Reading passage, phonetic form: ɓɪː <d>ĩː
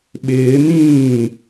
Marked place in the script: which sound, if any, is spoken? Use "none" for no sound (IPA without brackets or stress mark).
n